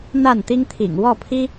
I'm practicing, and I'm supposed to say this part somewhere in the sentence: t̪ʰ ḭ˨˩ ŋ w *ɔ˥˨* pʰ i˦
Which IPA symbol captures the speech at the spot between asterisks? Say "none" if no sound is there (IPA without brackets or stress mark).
ɔ˥˨